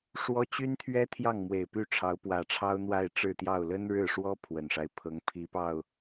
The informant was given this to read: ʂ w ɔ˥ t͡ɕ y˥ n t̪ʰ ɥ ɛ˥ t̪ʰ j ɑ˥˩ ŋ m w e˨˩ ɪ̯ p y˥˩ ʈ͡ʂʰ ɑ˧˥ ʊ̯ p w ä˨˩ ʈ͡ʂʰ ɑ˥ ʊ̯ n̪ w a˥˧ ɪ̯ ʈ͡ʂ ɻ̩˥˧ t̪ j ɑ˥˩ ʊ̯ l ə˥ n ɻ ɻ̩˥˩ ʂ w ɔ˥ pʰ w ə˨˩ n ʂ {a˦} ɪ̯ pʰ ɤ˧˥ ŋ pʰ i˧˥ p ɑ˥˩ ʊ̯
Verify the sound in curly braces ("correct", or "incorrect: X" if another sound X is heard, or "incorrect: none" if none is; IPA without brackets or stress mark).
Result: correct